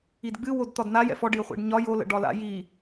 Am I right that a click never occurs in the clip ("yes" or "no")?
yes